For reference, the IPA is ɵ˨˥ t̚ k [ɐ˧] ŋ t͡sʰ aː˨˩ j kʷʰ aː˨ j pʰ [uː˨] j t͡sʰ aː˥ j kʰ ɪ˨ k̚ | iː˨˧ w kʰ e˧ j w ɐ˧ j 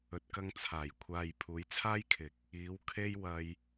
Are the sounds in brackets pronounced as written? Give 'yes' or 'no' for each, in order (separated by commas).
yes, no